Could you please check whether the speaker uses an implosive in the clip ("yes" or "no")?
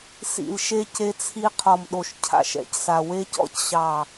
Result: yes